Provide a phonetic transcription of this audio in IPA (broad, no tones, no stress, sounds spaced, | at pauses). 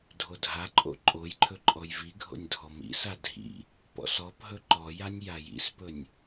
dʱ o dʱ a ǃʼ o̰ ǃʼ o j ǃʰ ɵ ǃʼ ɔ j v i ɡʱ o̰ nʲ dʱ ɔ m ḭ s a dʱ ḭ | p ɔ̰ s ɔ p ɦ ɵ ǃ ɔ j a nʲ j a j ḭ s p ɵ nʲ